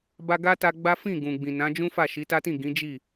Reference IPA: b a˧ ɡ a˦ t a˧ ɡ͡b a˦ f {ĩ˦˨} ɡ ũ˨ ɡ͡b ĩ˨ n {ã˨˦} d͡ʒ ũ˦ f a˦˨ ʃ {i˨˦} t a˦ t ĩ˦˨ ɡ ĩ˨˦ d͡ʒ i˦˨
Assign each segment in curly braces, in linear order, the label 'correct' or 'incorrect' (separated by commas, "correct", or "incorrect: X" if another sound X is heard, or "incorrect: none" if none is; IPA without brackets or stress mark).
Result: correct, correct, correct